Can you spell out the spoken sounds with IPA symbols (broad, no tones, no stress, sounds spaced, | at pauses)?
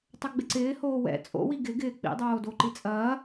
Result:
tˤ ɛ ɡ͡b ɪ ǀ ɪː h oː w ɛ̰ t͡sʼ o̰ w i ɡ ɪ ɡ ɪː k͡p ḭ dˤ oː d o ǃ i t͡sʼ ɐː